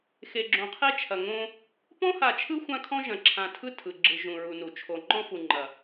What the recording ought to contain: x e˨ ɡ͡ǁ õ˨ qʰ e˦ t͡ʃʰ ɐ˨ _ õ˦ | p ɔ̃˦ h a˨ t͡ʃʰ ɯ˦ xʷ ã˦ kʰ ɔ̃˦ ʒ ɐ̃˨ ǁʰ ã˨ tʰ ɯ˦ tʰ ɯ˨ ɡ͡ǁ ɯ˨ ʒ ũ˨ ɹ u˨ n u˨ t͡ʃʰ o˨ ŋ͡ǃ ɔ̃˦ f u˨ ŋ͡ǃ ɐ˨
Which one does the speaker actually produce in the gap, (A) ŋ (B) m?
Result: A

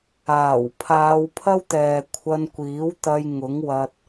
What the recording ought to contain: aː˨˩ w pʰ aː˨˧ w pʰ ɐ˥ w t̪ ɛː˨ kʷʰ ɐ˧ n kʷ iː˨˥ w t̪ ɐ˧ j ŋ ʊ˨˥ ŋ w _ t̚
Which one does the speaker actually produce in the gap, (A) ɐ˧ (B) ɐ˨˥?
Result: A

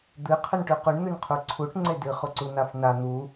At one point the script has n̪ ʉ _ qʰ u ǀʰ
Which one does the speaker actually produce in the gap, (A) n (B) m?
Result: A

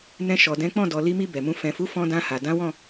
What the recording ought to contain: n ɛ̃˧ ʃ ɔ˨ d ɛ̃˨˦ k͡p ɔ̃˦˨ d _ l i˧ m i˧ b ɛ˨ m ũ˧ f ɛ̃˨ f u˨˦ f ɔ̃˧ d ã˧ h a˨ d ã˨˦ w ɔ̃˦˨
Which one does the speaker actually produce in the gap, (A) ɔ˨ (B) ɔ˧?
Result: A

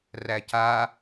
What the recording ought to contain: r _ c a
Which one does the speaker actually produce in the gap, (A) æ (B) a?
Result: A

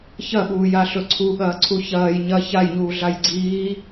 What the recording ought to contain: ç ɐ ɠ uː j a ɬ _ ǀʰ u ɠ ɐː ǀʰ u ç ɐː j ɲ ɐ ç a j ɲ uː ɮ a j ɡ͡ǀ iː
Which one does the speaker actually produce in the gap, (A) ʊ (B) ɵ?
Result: B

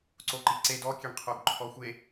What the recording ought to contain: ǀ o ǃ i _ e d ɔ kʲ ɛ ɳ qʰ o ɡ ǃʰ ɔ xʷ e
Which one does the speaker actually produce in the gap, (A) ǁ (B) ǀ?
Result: B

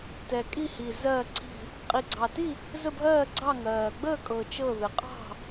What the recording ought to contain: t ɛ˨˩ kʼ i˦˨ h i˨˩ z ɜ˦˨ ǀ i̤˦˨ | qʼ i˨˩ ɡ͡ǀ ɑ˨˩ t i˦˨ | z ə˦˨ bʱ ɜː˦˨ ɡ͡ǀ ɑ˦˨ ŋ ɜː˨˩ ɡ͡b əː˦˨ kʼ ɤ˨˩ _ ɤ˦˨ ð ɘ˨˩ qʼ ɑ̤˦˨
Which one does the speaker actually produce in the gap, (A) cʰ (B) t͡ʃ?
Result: B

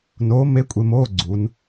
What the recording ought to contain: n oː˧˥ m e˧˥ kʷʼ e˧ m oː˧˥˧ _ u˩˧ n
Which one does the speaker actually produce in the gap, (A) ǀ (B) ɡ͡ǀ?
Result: B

